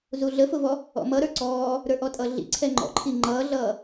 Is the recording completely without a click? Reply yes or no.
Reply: no